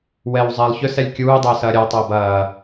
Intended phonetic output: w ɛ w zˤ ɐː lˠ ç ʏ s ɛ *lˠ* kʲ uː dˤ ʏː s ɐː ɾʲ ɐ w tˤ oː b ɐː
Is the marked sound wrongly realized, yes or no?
yes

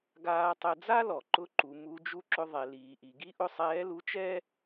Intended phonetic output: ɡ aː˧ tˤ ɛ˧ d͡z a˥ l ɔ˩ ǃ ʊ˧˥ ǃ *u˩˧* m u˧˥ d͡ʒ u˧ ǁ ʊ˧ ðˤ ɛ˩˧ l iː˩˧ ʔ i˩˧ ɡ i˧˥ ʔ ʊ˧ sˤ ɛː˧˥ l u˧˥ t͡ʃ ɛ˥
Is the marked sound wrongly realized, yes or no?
no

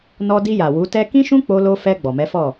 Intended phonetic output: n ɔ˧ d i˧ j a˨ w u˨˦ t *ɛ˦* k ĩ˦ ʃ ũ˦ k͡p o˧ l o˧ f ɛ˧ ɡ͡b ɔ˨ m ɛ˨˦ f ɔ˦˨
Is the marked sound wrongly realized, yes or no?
no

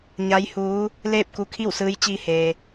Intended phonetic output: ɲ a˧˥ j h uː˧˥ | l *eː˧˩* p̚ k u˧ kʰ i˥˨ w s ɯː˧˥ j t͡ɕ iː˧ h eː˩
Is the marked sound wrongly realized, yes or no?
yes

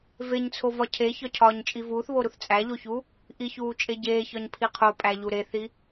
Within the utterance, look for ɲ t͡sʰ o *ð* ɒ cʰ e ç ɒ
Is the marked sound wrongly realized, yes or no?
yes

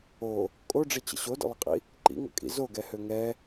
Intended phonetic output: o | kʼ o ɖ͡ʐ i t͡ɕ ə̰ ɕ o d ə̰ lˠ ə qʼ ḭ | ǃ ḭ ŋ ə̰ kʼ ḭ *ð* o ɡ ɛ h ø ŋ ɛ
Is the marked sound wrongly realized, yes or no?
yes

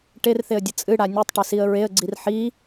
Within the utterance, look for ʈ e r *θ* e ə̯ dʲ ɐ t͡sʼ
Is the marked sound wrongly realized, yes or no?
no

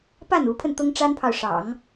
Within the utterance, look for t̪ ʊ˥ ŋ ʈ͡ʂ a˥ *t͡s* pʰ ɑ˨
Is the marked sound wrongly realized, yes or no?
yes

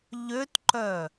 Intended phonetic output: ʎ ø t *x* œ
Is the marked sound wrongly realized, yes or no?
yes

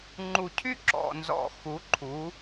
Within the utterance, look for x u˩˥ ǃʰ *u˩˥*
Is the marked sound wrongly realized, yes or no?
no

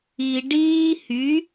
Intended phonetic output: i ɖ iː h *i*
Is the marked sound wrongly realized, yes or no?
yes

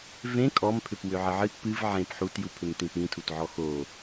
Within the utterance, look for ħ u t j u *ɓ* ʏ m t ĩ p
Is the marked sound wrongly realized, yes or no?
yes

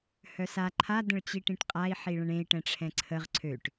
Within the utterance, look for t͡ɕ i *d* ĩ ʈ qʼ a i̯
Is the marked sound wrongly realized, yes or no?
yes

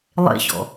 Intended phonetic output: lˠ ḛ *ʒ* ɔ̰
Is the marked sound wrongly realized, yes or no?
yes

